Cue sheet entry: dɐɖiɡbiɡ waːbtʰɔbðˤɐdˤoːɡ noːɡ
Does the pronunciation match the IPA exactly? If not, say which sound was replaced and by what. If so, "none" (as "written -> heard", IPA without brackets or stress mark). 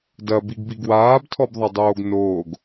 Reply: ɖ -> b